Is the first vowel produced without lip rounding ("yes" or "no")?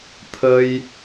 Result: yes